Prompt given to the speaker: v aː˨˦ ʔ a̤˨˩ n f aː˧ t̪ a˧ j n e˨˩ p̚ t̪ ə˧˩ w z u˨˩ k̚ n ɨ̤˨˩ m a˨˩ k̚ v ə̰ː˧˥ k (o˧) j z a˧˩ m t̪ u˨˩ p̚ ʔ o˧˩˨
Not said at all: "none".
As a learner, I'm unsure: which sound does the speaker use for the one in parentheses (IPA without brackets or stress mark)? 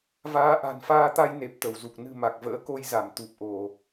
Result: o˧